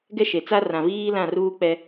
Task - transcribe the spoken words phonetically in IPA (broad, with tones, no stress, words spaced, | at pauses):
ɡɛ˦ ʃe˨t͡sa˦ rã˨viː˦ lã˦˨ruː˦k͡pɛ˦